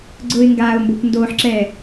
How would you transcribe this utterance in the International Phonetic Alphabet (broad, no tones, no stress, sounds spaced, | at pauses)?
ɡ͡ǀ ʊː ɪ̯ ŋ ɡ aː ʊ̯ m b o kʷ n d oː ħ ǁ ɛː